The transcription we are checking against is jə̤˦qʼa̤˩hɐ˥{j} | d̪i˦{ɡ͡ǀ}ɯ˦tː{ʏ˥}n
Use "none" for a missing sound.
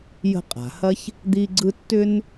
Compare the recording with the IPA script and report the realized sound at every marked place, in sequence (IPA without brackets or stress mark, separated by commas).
ç, ɡ͡ǀ, ʏ˥